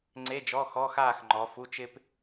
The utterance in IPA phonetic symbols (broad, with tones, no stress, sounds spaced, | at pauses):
ŋ͡ǀ e˧˥˧ d͡ʒ ɔ˧˥˧ x ɔ˧˥˧ x aː˥˨ x ŋ͡ǃ ɔ˨˥ f u˧˥˧ t͡ʃ ɪ˥ p